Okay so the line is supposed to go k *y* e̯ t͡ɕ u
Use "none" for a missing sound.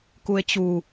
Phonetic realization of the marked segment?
u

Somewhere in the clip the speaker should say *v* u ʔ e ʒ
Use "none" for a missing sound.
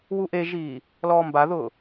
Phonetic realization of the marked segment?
w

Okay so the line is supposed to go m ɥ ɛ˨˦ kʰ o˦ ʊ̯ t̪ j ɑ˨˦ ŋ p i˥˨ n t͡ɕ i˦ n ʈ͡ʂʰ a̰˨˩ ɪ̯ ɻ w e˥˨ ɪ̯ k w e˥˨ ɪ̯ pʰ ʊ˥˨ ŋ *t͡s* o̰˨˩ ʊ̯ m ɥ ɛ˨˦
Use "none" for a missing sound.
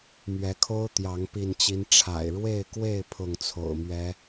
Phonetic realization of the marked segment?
t͡sʰ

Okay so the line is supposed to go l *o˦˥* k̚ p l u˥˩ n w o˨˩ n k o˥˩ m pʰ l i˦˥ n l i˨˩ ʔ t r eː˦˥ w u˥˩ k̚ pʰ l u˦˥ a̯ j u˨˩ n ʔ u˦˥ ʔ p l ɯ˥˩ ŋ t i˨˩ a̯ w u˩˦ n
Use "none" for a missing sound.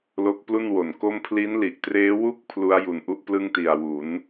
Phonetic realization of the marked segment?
o˦˥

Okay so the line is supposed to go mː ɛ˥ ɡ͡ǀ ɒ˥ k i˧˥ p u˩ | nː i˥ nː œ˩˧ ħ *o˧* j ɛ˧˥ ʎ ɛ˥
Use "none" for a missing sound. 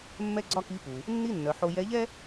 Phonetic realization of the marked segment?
o˧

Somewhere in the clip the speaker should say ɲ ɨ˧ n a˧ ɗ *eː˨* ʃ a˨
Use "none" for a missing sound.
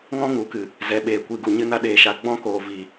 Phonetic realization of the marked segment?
eː˨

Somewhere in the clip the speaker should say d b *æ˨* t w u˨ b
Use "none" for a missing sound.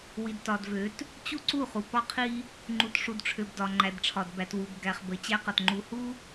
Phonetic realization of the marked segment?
æ˨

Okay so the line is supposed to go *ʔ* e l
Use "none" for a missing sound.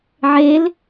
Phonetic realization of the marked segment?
ʕ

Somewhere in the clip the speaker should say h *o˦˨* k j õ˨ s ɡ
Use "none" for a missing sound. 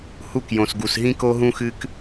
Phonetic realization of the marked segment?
u˦˨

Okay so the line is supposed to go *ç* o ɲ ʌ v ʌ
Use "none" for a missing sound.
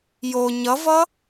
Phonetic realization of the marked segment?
j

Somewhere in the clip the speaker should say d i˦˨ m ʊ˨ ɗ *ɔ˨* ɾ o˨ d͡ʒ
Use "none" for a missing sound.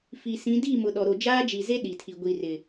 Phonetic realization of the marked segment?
ɔ˨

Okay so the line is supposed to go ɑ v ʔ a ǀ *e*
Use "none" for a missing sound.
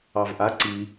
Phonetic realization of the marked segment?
i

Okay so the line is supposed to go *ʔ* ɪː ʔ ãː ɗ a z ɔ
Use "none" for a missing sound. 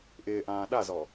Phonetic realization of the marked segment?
ʔ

